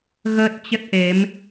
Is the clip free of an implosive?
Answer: yes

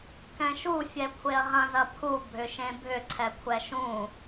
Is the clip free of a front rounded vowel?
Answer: no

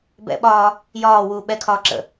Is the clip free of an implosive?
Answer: no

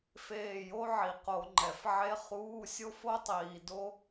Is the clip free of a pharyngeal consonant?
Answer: no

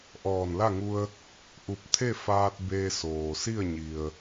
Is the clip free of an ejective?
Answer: yes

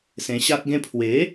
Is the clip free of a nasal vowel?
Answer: no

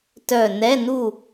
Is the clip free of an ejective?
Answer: yes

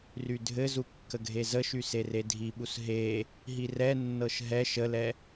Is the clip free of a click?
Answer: yes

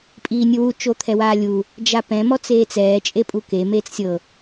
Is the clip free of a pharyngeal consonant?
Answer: yes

